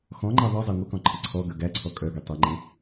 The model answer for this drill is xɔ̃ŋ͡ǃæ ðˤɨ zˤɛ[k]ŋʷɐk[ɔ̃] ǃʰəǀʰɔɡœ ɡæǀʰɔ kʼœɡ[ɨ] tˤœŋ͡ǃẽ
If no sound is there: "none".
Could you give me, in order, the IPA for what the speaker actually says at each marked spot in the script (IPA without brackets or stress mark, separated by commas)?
none, ɔ̃, e